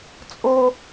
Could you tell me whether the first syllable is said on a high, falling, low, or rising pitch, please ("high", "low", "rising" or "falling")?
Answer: high